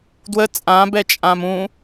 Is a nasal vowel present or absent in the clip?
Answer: present